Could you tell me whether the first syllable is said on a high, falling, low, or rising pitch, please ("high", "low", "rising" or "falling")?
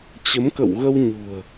rising